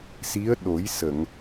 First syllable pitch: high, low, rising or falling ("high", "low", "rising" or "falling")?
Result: rising